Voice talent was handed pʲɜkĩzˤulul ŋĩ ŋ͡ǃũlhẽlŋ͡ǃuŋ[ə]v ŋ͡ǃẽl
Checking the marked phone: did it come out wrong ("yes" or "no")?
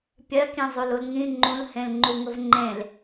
no